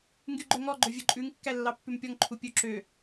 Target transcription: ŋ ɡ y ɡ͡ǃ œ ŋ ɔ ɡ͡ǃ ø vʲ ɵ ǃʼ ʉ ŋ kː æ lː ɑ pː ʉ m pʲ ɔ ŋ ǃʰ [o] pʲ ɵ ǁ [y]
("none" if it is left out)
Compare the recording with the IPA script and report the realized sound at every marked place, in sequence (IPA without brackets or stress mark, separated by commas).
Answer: u, ø